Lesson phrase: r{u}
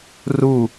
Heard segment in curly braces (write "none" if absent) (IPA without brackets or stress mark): u